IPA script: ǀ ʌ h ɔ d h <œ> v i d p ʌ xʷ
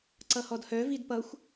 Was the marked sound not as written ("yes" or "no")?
no